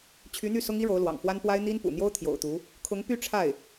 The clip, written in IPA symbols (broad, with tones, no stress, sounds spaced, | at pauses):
t͡ɕʰ y˧˥ n̪ y˥˩ s ʊ˥ ŋ i˥ ɻ o˧˥ ʊ̯ l w ɑ̰˨˩ ŋ f w a˥ n p w a˥ ɪ̯ n̪ i˥ n p ṵ˨˩ n̪ j o˥ ʊ̯ t̪ʰ j o̰˨˩ ʊ̯ t̪ u˧˥ | kʰ ʊ˧˥ ŋ p y˥˧ ʈ͡ʂʰ a˥˩ ɪ̯